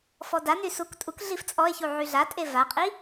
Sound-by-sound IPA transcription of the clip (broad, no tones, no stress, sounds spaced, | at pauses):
f ɔ d a n y s u k tʼ u k ɮ i f t͡sʼ ɔ e̯ ç u ʕ y ɮ a tʼ e v a qʼ i